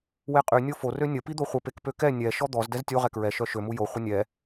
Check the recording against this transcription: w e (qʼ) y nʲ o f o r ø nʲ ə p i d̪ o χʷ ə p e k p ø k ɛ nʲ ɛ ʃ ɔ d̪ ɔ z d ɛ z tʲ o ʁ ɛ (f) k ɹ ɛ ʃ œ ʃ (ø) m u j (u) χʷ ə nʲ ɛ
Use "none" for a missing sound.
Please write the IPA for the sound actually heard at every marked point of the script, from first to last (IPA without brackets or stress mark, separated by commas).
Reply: qʼ, none, ø, o